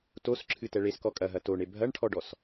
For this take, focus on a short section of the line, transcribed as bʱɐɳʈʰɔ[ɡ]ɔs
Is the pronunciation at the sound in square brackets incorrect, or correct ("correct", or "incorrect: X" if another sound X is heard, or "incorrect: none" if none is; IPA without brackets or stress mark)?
incorrect: ɖ